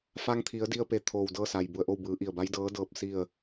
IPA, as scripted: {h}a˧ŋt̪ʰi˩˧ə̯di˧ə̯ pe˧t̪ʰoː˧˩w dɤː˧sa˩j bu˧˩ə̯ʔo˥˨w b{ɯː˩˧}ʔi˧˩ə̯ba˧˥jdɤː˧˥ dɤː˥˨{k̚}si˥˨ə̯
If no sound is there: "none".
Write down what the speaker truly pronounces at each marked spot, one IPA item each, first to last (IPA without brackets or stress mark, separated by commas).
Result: f, ɯː˩˧, p̚